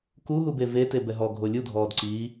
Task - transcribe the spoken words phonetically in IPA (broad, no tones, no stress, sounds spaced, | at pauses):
k u ɦ u b e v e t e b ɛ ɦ ɔ ɡʱ o lʲ u dʱ ɔː d ǀ i